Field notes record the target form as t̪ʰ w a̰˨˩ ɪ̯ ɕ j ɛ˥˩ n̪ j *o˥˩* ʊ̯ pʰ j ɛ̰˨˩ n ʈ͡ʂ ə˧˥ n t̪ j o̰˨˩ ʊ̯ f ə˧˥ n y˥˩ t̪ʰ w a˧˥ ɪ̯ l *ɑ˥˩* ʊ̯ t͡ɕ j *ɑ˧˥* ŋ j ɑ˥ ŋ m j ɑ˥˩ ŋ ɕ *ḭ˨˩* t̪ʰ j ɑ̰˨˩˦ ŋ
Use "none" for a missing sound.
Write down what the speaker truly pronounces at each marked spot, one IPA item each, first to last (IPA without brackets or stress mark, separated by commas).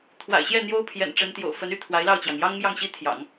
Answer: o˥, ɑ˥˩, ɑ˩, i˥